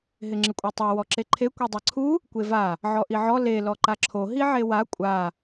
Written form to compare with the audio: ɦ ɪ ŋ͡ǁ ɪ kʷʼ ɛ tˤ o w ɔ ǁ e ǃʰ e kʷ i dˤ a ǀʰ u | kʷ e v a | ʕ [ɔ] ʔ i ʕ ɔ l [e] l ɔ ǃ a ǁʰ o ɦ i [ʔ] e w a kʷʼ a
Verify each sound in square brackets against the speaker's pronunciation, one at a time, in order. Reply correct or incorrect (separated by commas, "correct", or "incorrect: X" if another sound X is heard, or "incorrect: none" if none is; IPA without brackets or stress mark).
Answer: correct, correct, incorrect: ʕ